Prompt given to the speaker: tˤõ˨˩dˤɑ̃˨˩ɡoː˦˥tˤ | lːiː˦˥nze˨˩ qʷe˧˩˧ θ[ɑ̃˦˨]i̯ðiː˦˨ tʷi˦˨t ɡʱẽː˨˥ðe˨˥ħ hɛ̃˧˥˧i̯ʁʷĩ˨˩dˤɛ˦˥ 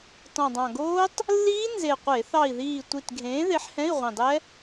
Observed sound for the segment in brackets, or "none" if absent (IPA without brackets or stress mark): ɑ˦˨